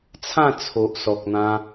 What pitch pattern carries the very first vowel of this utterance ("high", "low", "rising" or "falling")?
falling